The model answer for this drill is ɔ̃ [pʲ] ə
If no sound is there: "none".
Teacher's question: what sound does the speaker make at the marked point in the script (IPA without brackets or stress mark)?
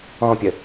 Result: pʲ